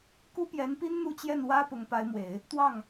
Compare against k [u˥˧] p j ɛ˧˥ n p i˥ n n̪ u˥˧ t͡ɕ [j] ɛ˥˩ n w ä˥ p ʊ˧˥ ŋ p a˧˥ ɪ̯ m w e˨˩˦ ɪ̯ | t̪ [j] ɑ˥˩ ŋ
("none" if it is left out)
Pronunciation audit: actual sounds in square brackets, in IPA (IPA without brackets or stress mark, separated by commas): u˥, j, w